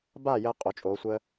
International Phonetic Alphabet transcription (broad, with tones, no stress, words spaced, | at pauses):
baː˥˩ jəː˧qʼo˩˧t͡ʃʼoː˩˧ sʷəː˧